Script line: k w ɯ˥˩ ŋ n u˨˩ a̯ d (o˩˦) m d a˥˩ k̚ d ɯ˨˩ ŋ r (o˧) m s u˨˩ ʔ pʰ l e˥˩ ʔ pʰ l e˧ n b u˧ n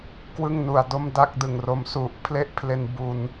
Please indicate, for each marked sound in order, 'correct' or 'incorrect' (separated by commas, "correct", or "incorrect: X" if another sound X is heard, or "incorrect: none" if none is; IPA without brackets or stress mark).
incorrect: o˥˩, correct